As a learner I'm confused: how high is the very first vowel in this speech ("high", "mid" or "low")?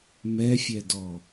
mid